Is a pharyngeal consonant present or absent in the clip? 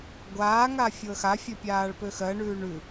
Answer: absent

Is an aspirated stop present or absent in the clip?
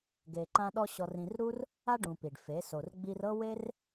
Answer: absent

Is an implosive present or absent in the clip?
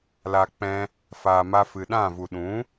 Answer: present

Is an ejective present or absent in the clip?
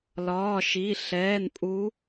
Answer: present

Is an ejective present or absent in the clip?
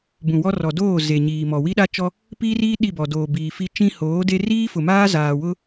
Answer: absent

